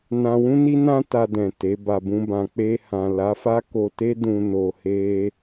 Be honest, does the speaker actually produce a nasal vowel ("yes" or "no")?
yes